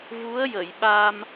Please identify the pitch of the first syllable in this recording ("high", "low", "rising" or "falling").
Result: rising